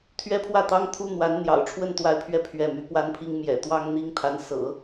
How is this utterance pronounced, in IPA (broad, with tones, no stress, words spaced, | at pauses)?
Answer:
t̪ʰɥɛ˥pʰwä˥˩t̪ɑ˥ŋ t̪ʰu˥ n̪wa˧˥n n̪jɑ̰˨˩ʊ̯ʈ͡ʂʰwə˥˧n t̪wa˥˧ɪ̯pʰɥɛ˥˧ pʰɥɛ˥˩my˧˥ pwa˥npʰi˥ŋ mjɛ̰˨˩t̪wɑ˥ŋ n̪i˥ŋt̪ʰa˧˥nsɤ̰˨˩˦